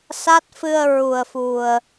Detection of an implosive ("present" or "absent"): absent